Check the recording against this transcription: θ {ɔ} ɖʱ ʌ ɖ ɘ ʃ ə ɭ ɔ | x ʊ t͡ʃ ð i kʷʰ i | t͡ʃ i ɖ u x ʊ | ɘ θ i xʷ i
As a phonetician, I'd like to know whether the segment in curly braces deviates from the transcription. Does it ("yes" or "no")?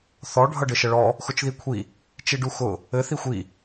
no